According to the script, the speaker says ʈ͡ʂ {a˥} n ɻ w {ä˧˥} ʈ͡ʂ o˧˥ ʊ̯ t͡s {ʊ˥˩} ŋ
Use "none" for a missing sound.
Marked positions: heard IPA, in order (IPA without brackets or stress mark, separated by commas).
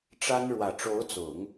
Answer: a˥, ä˨˩, ʊ˨˩˦